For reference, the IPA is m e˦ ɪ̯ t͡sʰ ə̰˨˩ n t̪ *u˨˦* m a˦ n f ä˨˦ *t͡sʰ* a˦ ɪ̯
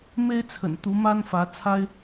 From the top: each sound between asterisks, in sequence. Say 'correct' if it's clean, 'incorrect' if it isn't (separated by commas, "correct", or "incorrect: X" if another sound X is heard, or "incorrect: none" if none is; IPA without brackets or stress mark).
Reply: correct, correct